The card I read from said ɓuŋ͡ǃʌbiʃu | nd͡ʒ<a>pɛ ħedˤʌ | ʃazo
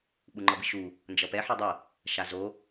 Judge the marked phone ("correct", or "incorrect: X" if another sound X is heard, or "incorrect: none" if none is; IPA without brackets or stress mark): incorrect: ʌ